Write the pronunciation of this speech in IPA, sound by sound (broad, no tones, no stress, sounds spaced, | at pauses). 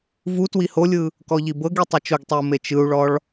v u t w i h o lʲ ɯ | k ɔ ʎ i b ɤ ɡ i tˤ y t͡ʃ o ɡ tˤ ɛ u̯ m e t͡ʃ ɯ u̯ ɭ ɔ ɭ